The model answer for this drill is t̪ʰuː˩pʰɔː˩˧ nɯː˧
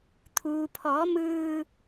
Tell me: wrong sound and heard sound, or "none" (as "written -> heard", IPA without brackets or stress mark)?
n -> m